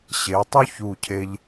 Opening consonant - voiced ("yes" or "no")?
no